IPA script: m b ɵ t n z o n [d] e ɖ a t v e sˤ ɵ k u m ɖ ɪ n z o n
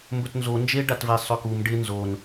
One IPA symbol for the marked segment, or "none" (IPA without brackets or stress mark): d͡ʒ